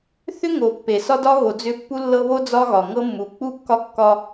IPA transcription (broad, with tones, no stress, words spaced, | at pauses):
θʏ˦ ŋo˨ pːe˨sɒ˦dɒ˦ ɣo˨d͡zʏ˦˨pːu˦ lːɤ˦βo˦ d͡zɒ˦ɣɒ˨ŋɤ˦ mːu˨k͡pu˦kːɒ˦ kːɒ˦